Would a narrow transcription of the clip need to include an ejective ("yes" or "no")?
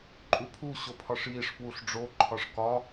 yes